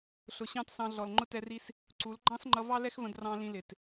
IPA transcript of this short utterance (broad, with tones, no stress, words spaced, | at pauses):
ɬʊ˨ ɕɑ̃˦t sɑ̃˧ ɮɔ˨l ŋ͡ǃʊ˦tɛ˧ri˦s | ǀu˨˦l ɡ͡ǃɑ̃˦sŋ͡ǃʌ˧ vɑ˦lɛ˦xvə̃˧drɑ̃˧ lĩ˧lɪ˨t